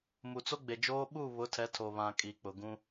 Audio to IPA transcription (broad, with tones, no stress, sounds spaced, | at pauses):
m u˨ t͡s o˦ ɡ͡b e˨ d͡ʒ oː˦ ɓ u˦˨ β ʊ˨˦ tʰ ɛ˨˦ tʰ o˨ β ã˨ kʼ i˨ k͡p ʊ˨ ɡ ũ˦